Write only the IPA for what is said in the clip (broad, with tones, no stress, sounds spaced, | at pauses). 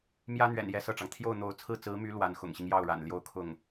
m j ä˥ n̪ ɥ ɛ̰˨˩ n j ɛ˥˧ s ɤ˥˩ ʈ͡ʂ ɑ˩ ŋ t̪ʰ j o˥˩ ʊ̯ n̪ o˧˥ ʊ̯ t͡sʰ ɹ̩˥˩ t͡s ɹ̩˧˥ m y˧˥ l w a˧˥ n x ʊ̰˨˩ ŋ ɕ i˦ ŋ j ɑ˥˩ ʊ̯ ɻ a̰˨˩ n l j o˥˧ ʊ̯ kʰ ʊ˥˩ ŋ